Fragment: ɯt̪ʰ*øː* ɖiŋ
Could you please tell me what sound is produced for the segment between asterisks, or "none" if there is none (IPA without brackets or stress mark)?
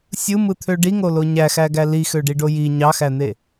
ø